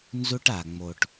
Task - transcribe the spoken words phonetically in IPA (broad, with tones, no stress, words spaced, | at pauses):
nzu˦ʈa˨ŋ͡mo˨ʈ